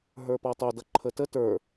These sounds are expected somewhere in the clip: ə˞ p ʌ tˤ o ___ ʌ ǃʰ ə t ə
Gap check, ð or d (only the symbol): d